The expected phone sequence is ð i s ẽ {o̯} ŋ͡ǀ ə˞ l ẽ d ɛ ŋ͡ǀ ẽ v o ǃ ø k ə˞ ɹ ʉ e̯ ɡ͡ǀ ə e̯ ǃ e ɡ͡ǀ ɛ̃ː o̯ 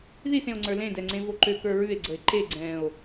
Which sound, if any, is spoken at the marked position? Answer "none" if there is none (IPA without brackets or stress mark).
o̯